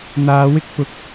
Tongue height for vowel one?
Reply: low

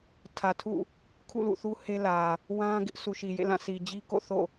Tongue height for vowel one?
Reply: low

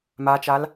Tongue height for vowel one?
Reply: low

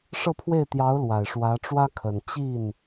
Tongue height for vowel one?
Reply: mid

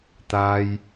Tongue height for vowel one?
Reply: low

